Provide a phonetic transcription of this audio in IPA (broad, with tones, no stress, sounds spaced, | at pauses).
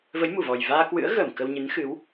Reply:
v ə˨˦ j m u˧˩ v ɔ˨˩ j v aː˧ k w ɨ̰˧˥ ə̯ ɣ əː˧˩ m k ə˧ w ɲ ɨ˨˦ n x ɨ˨˦ w